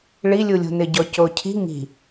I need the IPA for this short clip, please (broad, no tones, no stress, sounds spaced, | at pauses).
ɭ i lʲ u lʲ o̤ n ɪ ɟ ɔ c o cʰ i̤ ŋ i̤